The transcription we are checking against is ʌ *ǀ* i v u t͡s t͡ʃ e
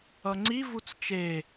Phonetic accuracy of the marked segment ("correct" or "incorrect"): incorrect